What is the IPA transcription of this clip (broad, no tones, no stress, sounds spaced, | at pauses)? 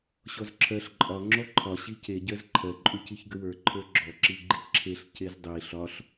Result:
ɕ ɔ z ǁʰ ɜ ɬ ǃʼ ɒ ŋ͡ǁ ɔ ǃʰ ɒ ɕ i c e ɟ ɜ z ǃʰ ɜ ǃʼ u c i ç ɡ ə w ə˞ ǃʰ ə˞ ɡ͡ǁ ɔ ǁ i ɡ͡ǃ i ǁʰ e ɬ c e z dˤ i ɬ ɒ ɬ